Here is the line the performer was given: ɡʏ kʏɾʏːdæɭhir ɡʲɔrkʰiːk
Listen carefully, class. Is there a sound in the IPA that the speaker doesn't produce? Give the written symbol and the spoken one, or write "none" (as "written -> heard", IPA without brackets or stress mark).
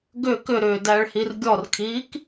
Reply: none